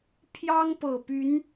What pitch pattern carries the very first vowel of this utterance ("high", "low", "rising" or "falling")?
high